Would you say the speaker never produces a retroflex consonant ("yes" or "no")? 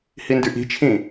yes